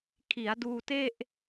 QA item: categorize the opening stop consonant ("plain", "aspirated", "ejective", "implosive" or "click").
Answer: aspirated